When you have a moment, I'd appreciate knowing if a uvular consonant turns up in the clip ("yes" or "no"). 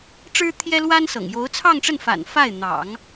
no